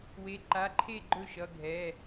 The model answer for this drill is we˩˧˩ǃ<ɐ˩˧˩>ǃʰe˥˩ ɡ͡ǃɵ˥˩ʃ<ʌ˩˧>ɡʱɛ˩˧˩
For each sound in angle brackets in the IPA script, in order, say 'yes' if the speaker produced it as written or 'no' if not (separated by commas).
no, no